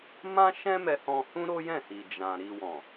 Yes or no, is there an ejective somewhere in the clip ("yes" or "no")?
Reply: no